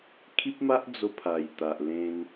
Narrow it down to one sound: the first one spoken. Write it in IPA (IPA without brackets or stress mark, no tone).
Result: kʰ